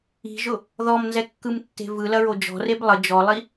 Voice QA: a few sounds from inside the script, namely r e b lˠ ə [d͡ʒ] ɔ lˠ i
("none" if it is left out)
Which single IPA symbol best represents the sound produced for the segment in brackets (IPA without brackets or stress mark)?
d͡ʒ